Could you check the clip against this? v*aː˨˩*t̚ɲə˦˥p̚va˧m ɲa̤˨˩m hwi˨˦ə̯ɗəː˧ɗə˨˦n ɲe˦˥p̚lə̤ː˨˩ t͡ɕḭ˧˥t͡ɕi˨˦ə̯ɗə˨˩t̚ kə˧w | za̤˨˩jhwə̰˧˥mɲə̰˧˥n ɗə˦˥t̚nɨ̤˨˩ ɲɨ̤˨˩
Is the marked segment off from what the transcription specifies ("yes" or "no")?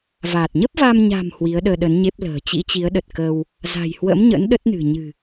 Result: no